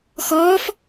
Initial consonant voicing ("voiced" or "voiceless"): voiceless